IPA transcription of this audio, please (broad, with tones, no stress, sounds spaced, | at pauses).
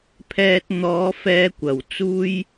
pʰ ɛː˧ t̚ n̪ ɔː˨˧ f ɛː˧ kʷ ɐ˨˩ w t͡s uː˧ j